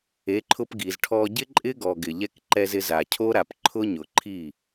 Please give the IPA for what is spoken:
e˨˦ ǃʰ ʊ˧ p ɡ i˨ z ʈʰ ɔ˧ ɟ ɪ˦ ǃʼ ɪ˦ ɡ ɔ˨ ɡ ɪ˨ ʎ ɛ˦ k ǃ ɛ˧ z ɪ˧ z a˨ cʰ o˦ ɾ a˨ p ǃʰ ʊ˦ ɲ ʊ˨ ǃʰ i˦˨

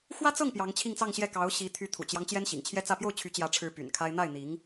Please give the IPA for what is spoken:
x w ä˥ t͡s ɤ˥˩ ŋ p j ɑ˧˥ ŋ t͡ɕʰ i˥˧ ŋ t͡s ɑ˥˧ ŋ ɕ j ɛ˥˩ k ɑ˧˥ ʊ̯ ɕ i˧˥ t̪ʰ y˧˥ t̪ʰ ṵ˨˩ t͡ɕ j ɑ˦ ŋ t͡ɕ j ɛ˥ n ɕ ḭ˨˩ ŋ t͡ɕʰ j ɛ˥ t͡s ä˥˧ p j o˥˩ ʊ̯ t͡ɕʰ y˧˥ t͡ɕ j ä˧˥ ʈ͡ʂʰ ɻ̩˧˥ p y̰˨˩ n kʰ a˥ ɪ̯ n̪ a˥˩ ɪ̯ n̪ i˧˥ ŋ

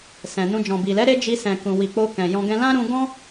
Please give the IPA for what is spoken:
s ɛ̃˨ n ũ˧ d͡ʒ ɔ̃˨ b i˨ l ɛ˨˦ ɾ e˦ d͡ʒ i˧ s ɛ̃˨ k ũ˨ w i˨ k͡p o˧ k ɛ̃˨ j ɔ̃˧ ɡ ɛ̃˧ l ã˦ ɾ ũ˧ ɡ ɔ̃˦

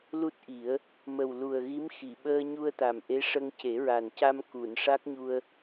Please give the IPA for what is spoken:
l u˦˥ t̚ ʔ i˨˩˦ ə̯ | m ə˨˩ w l u˨˩ ə̯ ɣ i˧˥ m x i˨˩˨ ɓ əː˧ ɲ u˧ ə̯ t̪ a˨˩ m ʔ e˧˥ ʂ ə˧ ŋ c e˨˩˦ ɹ a˨˩ n c a˧ m k u˨˩˨ n ʂ a˦˥ k̚ ɲ u˧ ə̯

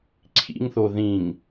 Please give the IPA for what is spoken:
ǀʰ ḭ ŋ θ o ð ĩ ŋ

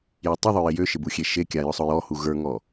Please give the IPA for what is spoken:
j ɔ tˤ ʊ ðˤ ʊ j ɪ j ø ʃ ɪ b u xʲ e ʃ e kʲ a j ʊ sˤ ʊ j ɔ h u ɣ ə˞ ŋ ɔ

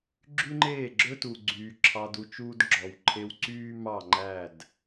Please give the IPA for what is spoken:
ɡ͡ǁ y˦ ŋ͡ǃ eː˦˨ ɡ͡ǁ ɵ˦ t u˨ ɡ͡ǀ yː˨ ǁʰ ɑ˧ d u˧ t͡ʃ uː˦ d ɡ͡ǁ ɔ˨ w ǃʰ e˧ w ǀ yː˦ m ɑ˦˨ ŋ͡ǃ æ˦˨ d

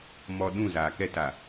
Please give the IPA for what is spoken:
m ɔ˦ ɗ ũ˦˨ z aː˨ k ɛ˦ t a˨

